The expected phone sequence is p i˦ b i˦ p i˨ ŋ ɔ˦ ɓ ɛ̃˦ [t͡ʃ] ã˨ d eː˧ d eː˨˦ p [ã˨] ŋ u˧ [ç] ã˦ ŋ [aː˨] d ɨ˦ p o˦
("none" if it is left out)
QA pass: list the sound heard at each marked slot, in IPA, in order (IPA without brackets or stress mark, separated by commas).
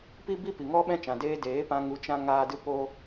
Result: t͡ʃ, ã˧, t͡ʃ, aː˦